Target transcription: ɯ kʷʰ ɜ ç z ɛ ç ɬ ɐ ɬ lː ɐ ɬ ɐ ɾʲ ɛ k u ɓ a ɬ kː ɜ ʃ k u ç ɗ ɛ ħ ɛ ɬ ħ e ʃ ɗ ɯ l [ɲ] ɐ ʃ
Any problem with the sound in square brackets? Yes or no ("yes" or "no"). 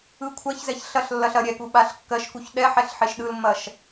yes